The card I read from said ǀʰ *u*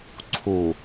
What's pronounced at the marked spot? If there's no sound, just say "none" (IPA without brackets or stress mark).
u